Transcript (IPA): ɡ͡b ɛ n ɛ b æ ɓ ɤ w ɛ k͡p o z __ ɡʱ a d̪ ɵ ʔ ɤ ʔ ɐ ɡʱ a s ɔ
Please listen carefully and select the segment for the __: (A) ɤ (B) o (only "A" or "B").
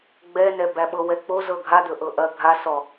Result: A